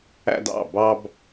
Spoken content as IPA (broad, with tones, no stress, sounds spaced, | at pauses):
æ̰˧ d ɑ̰˧˩ b ɑ˧ b